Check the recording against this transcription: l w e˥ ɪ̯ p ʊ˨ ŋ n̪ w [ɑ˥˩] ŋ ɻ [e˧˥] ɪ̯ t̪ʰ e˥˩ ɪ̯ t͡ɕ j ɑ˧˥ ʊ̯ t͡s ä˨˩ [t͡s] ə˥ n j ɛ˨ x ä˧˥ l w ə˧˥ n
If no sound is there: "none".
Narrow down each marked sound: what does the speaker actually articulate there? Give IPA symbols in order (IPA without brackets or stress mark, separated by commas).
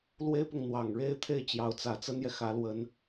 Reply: ɑ˨˩, e˥, t͡s